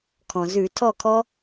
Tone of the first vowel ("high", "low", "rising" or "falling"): low